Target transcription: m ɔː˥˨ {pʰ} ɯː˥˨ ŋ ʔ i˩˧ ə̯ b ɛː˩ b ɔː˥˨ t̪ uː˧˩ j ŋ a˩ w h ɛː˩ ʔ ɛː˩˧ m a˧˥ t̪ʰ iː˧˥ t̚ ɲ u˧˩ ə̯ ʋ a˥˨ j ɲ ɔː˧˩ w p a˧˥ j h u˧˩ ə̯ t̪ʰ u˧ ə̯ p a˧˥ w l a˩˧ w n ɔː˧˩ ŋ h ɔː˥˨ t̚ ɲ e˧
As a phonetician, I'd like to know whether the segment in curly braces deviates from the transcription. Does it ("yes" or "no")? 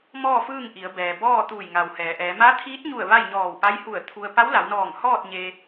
yes